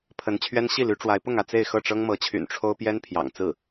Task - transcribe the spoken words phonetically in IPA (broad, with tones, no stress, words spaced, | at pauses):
pʰə˧˥n t͡ɕʰɥɛ˥n ɕi˥˩ly˧˥ʈ͡ʂwa˧˥ɪ̯ pʊ˥˧ŋä˥˧ t͡se˥˧ɪ̯xɤ˥˩ʈ͡ʂɤ˥ŋ mɤ˧˥t͡ɕʰy̰˨˩n ʈ͡ʂʰo˥ʊ̯ pjɛ˥npʰjɑ̰˨˩ŋt͡sɹ̩˥˩